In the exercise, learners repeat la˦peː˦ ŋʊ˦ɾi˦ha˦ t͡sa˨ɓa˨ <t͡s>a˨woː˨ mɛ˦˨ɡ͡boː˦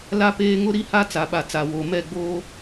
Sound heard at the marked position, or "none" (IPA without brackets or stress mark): t͡s